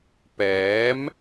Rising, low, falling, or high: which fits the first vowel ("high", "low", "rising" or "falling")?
rising